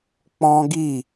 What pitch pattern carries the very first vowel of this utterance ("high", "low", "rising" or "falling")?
high